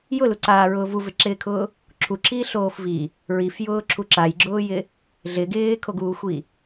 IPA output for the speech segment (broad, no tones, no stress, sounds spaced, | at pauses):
j ʊ l u ǀ aː ɹ ʊː v u v ɪ ǁ ɪː kʰ ʊː | ǁʰ u ǁʰ iː ɬ oː f v i | ɹ i f j ʊː ǁʰ u ǁ a j ɡ͡ǁ ʊː j ɪ | ɮ ɪ ɡ ɪː kʰ o ɡ uː xʷ i